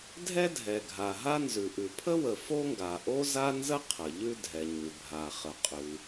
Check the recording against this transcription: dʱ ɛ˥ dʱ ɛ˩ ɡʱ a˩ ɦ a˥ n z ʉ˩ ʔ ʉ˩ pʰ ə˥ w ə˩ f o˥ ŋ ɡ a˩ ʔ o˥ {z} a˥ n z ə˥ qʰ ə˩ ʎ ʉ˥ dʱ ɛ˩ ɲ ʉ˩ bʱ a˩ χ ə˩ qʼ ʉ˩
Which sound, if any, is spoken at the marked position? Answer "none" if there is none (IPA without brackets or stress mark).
z